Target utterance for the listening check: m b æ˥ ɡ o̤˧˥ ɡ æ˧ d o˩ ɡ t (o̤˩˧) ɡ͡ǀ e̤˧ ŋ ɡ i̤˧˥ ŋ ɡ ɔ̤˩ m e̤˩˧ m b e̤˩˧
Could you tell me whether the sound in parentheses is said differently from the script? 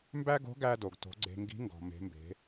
no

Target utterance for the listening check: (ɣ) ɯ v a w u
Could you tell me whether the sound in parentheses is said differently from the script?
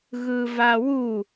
no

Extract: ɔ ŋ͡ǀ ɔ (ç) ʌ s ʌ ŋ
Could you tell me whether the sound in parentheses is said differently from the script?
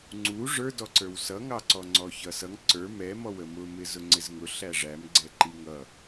no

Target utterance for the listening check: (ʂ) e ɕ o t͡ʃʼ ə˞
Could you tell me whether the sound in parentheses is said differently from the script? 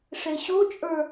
no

